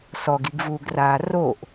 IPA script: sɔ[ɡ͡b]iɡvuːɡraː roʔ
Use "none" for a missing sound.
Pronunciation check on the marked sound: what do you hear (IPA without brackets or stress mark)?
ɡ